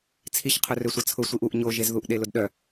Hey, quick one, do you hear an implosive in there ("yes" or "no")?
yes